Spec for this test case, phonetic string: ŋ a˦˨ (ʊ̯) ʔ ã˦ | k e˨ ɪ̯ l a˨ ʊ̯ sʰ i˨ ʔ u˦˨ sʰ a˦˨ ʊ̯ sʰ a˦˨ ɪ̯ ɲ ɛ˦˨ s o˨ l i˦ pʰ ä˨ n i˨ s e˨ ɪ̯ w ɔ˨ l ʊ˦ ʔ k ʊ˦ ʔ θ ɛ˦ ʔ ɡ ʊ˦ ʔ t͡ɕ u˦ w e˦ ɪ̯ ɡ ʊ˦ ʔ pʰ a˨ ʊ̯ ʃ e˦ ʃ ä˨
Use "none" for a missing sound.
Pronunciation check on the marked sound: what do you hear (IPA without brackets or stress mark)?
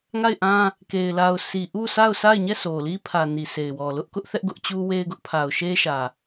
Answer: ɪ̯